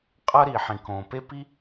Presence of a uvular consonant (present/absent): present